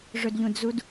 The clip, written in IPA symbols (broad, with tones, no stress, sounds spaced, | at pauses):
ʐ ɵ˨ d ʎ ũ˨ d z u˧ d